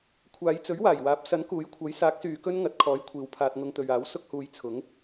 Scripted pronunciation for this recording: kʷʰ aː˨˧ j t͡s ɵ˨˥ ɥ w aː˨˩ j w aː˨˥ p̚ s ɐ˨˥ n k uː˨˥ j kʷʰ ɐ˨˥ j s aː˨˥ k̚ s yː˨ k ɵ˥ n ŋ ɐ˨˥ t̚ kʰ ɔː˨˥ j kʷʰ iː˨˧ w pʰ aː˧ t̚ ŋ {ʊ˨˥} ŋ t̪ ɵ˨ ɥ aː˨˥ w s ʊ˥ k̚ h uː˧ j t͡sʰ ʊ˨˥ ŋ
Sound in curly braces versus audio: incorrect: ʊ˧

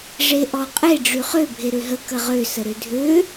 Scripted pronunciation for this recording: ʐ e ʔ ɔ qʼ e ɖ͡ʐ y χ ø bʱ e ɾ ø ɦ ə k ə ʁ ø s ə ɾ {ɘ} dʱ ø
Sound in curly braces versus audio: incorrect: ø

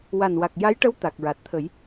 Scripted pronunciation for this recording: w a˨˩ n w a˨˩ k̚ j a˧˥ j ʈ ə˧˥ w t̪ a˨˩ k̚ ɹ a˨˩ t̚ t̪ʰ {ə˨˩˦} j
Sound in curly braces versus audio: correct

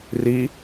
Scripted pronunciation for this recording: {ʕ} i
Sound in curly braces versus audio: incorrect: r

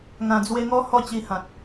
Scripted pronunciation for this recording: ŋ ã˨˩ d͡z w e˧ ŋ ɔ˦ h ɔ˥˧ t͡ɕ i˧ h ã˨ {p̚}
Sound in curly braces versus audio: incorrect: t̚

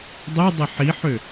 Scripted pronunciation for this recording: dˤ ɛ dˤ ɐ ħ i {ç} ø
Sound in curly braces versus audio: incorrect: ħ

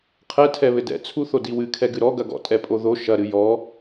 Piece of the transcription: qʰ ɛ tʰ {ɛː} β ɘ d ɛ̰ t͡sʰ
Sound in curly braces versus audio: incorrect: ɛ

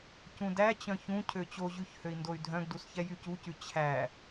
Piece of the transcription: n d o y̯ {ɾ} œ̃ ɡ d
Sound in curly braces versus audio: incorrect: dʱ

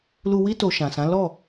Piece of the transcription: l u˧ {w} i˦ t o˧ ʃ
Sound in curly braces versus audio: correct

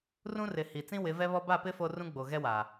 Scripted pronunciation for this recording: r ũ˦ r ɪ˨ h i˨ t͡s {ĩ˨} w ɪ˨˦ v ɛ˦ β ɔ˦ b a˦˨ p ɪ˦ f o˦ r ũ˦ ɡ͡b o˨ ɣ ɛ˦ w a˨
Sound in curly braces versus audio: incorrect: ĩ˦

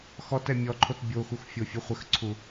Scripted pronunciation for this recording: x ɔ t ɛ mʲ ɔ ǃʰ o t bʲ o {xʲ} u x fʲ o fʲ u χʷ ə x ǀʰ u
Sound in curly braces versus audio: incorrect: x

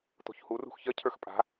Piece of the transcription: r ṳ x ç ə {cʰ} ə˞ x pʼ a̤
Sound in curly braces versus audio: correct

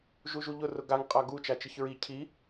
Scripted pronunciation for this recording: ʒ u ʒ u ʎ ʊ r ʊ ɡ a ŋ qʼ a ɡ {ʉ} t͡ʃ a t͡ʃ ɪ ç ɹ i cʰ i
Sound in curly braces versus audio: incorrect: u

